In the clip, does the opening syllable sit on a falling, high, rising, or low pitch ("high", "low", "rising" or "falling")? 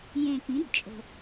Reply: low